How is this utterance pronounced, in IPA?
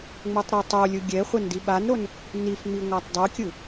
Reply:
ŋ͡m o tˤ ɾ ɤ tˤ o lʲ ɯ ɡʲ ɛ χʷ ɛ n d i ɓ a n ɾ o n | n i f ŋ͡m i ŋʷ a tˤ dˤ u kʲ ɯ

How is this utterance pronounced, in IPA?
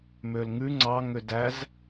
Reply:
m ø l ŋ ʉ ŋ͡ǀ ɑ ŋ ø d æ z

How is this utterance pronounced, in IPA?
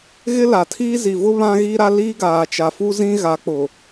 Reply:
ɣ ɪ˦ l a˨ tʰ iː˦ z i˨ v ʊ˦ β ã˦ ɣ i˦ ɾ a˦ l iː˦ ɡ aː˨ t͡ʃ a˨ f u˦ z ĩ˦ ɣ a˨˦ k͡p ʊ˨

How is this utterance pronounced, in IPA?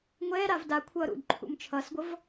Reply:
ŋʷ ɛː ɾ a v d a kʷʰ ʌː ɾ ṵ d ǃʰ ṵ m t͡ʃʰ ʌ s ɡʷ ʌ v

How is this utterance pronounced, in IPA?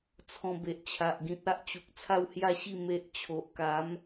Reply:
t͡sʰ ɔ̃˧ b e˨ ʔ t͡ɕʰ a˨ ʔ ɡ ĩ˨ t̚ a˦ ʔ t͡ɕ u˨ k̚ t͡sʰ a˥˧ w h j a˥˧ ɕ i˥˧ m e˦ ʔ t͡ɕʰ o˨ ʔ k a˨˦ m

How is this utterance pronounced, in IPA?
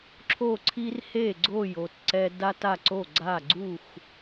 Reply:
ǁʰ o˧˩ ǀʰ i˧ r h e˧˩ ɡ͡ǀ o˧˩ j o˧˩ t ǀ ɛ˧ d a˧ t a˧˩ ǀ o˧˩ ɡ͡ǀ a˧˩ ɡ͡ǀ u˧˩ x

